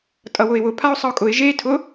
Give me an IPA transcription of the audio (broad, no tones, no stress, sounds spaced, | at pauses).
tʼ ʌ w ʊ ɪ̯ w ʊ pʰ a ʊ̯ sˤ ʌ ʊ̯ kʼ ʊ ɪ̯ ʒ e tʰ ʊ